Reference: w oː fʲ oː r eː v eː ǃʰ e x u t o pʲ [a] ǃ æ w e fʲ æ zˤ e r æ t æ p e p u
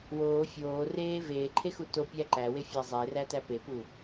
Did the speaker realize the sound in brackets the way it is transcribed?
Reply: no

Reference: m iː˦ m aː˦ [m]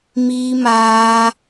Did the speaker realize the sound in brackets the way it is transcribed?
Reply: no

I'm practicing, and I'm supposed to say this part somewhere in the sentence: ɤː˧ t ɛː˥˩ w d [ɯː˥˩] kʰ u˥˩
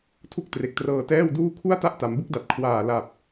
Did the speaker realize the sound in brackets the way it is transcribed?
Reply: no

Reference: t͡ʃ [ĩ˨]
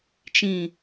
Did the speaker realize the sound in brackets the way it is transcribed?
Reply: yes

